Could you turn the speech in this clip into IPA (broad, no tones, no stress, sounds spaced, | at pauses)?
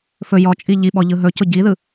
f ɵ j ɔ t͡ʃʼ i ʎ i ɓ ɔ ʎ ɯ ɦ ɵ c ʊ ɟ i ð ɯ